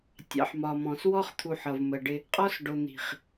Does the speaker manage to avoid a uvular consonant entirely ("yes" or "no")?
no